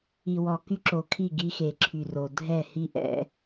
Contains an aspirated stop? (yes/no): yes